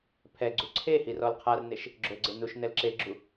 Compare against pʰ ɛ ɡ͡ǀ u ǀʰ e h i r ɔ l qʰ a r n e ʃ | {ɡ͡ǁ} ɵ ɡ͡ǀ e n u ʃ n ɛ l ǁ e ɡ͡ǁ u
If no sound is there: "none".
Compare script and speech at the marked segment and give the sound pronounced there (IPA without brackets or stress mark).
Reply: ɡ͡ǁ